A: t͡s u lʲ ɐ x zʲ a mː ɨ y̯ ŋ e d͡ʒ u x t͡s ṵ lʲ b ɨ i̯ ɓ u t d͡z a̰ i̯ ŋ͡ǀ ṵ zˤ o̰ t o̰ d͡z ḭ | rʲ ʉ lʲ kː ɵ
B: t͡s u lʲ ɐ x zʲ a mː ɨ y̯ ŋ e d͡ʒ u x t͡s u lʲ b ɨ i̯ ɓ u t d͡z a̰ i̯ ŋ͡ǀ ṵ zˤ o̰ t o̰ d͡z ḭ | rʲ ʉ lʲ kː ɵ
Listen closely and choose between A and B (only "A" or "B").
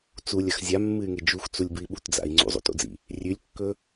B